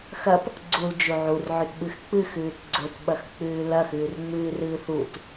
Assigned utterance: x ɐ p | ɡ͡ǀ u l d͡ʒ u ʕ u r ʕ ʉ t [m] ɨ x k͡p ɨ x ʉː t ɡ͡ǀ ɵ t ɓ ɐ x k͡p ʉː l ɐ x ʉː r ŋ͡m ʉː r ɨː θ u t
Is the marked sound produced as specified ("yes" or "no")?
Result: no